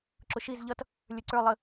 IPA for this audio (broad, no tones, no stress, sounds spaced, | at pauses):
ǁ ʊ ʃ i z ʎ ʌ t | lʲ ə˞ ǀ ə˞ lˠ ə